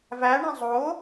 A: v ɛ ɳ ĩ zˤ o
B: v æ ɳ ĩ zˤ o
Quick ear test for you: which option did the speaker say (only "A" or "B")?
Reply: B